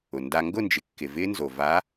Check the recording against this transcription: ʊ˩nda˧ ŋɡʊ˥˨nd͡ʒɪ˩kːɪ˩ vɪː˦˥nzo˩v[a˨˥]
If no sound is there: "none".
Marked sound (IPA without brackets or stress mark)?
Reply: a˨˥